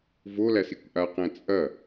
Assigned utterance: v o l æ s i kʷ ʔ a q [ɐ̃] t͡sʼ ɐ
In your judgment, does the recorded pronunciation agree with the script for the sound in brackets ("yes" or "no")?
no